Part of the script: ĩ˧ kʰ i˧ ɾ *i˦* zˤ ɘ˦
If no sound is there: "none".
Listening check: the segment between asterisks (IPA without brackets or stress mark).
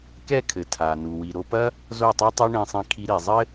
i˨